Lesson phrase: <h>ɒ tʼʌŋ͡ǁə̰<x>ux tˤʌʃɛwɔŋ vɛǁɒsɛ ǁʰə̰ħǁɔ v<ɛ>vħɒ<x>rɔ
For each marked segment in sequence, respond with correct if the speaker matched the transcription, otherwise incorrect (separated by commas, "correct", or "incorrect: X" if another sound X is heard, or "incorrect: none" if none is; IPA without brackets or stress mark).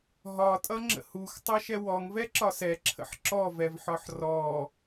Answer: incorrect: ɦ, incorrect: h, correct, incorrect: ħ